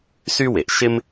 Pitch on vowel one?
high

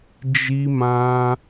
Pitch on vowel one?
high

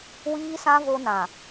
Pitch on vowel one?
high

